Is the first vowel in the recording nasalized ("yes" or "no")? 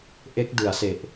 no